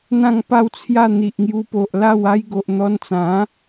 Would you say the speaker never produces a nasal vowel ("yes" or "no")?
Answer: no